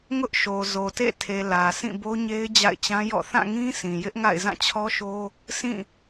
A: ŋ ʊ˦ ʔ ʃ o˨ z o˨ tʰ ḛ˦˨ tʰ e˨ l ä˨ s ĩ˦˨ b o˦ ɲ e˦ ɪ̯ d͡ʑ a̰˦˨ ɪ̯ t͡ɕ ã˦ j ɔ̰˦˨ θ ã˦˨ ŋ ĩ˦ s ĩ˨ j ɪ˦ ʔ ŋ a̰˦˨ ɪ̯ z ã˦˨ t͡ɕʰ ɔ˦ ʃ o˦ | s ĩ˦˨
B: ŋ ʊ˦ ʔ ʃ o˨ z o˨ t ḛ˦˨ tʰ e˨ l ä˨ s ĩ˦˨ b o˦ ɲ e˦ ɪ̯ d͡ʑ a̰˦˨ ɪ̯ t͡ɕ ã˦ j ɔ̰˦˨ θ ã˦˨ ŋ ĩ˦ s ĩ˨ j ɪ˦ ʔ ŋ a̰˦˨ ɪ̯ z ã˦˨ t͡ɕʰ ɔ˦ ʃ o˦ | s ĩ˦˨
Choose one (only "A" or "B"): B